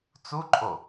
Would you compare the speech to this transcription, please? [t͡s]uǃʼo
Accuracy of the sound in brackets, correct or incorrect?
correct